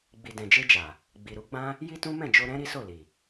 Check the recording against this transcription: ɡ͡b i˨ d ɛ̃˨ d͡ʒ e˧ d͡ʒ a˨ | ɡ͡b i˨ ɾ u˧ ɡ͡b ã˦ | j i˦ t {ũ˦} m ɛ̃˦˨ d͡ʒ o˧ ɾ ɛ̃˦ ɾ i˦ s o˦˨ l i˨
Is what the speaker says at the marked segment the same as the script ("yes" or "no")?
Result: yes